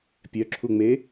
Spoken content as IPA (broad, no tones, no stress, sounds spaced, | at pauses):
pʲ œ ǁʰ u ŋ͡m e